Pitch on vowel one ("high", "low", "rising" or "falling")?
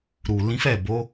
low